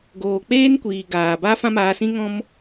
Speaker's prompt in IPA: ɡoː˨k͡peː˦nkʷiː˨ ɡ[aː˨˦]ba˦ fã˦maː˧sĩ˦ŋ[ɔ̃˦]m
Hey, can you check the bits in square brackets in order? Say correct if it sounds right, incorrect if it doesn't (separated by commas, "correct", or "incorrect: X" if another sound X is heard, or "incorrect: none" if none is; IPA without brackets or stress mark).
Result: incorrect: aː˨, correct